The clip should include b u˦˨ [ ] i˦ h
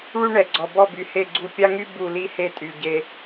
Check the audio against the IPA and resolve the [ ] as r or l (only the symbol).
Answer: l